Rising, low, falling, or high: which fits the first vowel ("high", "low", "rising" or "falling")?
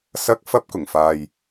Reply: rising